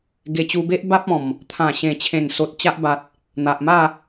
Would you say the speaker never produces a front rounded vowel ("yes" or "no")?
yes